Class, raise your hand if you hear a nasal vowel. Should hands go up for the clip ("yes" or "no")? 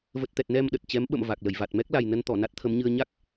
no